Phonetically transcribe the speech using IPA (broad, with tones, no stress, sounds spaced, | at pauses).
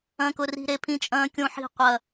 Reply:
ɐ̃˨ k ʊ˨ r i̤˨ ɾ e˨ pʰ ĩ˦ t͡ʃʼ ɐ̃ː˦ kʲ õ˦ ħ i̤˦˨ qʷ ɐ˦˨